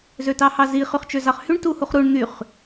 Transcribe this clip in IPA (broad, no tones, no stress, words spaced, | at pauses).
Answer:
zøtɑhɑzi χyχt͡ʃøzɑχhyɳ tuhuχɾuɳ n̪yχ